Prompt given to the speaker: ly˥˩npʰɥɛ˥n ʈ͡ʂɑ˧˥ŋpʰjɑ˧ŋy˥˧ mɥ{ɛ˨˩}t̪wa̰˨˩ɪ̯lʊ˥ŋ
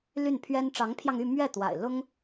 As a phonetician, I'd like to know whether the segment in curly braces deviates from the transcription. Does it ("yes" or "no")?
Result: yes